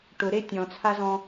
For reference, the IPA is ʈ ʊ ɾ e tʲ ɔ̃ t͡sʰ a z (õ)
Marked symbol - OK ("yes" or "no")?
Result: no